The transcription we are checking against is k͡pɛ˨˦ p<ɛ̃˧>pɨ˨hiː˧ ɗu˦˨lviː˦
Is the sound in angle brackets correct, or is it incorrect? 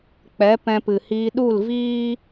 correct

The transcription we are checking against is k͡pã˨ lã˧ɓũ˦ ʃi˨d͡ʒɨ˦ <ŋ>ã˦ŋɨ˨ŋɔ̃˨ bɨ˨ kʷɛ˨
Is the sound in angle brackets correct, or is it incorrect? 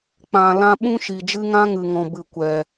correct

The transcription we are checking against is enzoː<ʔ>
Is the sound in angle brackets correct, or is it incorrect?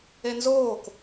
incorrect: k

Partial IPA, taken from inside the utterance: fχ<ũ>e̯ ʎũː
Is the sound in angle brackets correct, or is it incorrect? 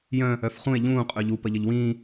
correct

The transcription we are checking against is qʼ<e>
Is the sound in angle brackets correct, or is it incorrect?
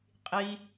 incorrect: i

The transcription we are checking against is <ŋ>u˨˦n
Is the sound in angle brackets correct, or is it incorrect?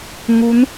correct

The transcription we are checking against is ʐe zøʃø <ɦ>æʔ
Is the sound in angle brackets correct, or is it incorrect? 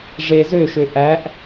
incorrect: ʔ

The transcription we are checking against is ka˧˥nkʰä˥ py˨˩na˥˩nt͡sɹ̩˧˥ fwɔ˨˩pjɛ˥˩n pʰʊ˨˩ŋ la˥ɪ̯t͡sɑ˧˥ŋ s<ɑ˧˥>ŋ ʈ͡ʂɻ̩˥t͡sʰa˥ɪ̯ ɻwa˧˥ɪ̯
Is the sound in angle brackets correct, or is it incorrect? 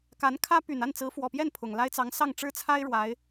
incorrect: ɑ˥˩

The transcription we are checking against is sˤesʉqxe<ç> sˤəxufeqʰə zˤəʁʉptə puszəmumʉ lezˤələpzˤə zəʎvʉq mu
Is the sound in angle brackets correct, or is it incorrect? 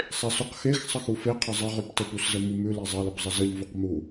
incorrect: x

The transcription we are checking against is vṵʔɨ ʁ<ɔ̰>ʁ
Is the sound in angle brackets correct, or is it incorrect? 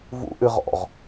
correct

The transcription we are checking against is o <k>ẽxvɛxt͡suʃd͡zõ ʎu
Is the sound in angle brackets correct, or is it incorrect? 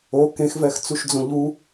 correct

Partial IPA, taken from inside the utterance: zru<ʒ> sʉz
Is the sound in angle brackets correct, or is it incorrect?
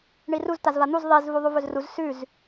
incorrect: z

